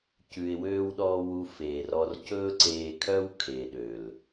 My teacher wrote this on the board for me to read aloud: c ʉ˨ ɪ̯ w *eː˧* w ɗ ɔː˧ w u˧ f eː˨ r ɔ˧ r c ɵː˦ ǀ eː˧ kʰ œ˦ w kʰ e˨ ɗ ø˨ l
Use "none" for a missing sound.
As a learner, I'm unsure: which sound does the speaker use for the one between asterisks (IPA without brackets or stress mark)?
øː˧